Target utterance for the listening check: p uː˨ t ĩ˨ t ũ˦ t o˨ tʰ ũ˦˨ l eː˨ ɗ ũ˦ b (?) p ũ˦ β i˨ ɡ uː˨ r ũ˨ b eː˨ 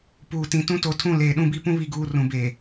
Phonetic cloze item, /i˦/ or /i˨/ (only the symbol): i˦